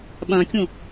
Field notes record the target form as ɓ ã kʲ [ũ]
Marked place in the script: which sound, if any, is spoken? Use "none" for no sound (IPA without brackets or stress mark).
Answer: õ